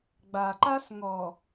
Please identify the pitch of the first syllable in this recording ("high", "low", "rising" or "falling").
low